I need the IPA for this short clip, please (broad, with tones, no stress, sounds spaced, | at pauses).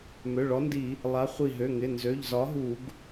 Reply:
m ø˩˧˩ ɭ ɔ˨˥ n d i˧˩˧ | lˠ a˨˥ χʷ i˧˩ ɦ ø˩˧˩ ŋ ɪ˩˧˩ n z ø˩˧˩ ʎ z ɒ˨˥ ɦ u˧˩˧ ɡ